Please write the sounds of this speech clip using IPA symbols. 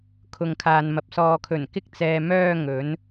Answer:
kʰʊ˨ŋkʰaː˨nmɐ˨p̚ sɔː˨kʰɵ˨˩n kɪ˧k̚t͡sɛː˨ mœː˧ŋɵ˨˧n

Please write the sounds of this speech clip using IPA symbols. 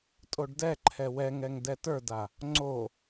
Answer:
tʼoɖdɛǃʰɛ wɛŋɛŋ dɛtə˞da | ŋ͡ǀo

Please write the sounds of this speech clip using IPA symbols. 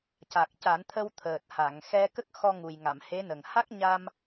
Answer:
ca˨˩k̚ca˨˩˦nt̪ʰə˧w t̪ʰəː˨˩t̚ ha˨˩˨ŋ xɛ˧ kə˦˥k̚ xɔ˧ ŋu˨˩jŋa˨˩˨m he˧˥nə˨˩ŋ ha˦˥k̚ɲa˧m

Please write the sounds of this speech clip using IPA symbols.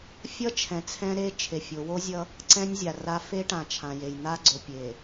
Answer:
fʲʌ˦t͡ʃʰɛ̃˨ t͡sʰɛ̃˦ɾe˦ t͡ʃʰe˨fʲo˨˦ wo˦zʲʌ˦ | ǀɛ̃˦nʲzʲa˨ra˦ fe˦ʈã˨t͡ʃʰã˨je˨j n̪a˦ɡ͡ǀo˨ pʲe˨

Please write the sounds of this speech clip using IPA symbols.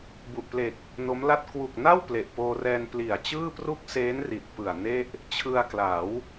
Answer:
bu˨˩ʔple˨˩k̚ | no˦˥mla˥˩t̚ kwu˨˩k̚na˥˩w ple˨˩ʔpoː˧rɛː˧n pli˨˩a̯ t͡ɕɯː˥˩pru˥˩k̚ seː˦˥nri˨˩t̚ pɯ˨˩a̯ne˥˩ʔ | t͡ɕʰɯ˧a̯kla˩˦w

